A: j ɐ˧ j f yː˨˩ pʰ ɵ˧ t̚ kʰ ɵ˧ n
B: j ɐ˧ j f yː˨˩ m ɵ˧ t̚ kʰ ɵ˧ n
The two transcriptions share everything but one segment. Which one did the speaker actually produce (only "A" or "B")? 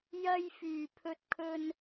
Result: A